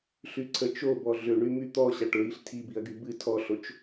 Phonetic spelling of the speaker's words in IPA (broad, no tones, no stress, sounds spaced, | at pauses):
ɬ y ǀʰ ə t͡ʃ o b ɔ ɮ ʏ ɳ y m y t̪ ɔ ɕ a ʈ ɹ i ɬ tʰ i b i ɐ̯ ɡ y b ɨ tʰ ɔ ɬ o t͡ʃ